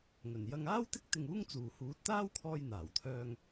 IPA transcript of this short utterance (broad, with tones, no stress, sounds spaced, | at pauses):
ŋ ɵ˨˩ n j ɐ˧ ŋ aː˥ w t̪ ɪ˥ k̚ t̪ ɪ˧ ŋ uː˥ ŋ t͡s uː˨ h uː˨˥ t̚ t̪ aː˥ w kʰ ɔː˧ j n̪ aː˨˩ w t̪ʰ œː˧ ŋ